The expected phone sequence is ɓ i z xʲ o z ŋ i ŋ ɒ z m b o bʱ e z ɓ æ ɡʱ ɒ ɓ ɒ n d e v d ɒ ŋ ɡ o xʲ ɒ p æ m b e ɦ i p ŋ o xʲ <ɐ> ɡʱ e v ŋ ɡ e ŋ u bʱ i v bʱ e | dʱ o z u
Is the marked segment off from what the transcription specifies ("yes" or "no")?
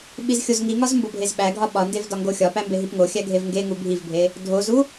yes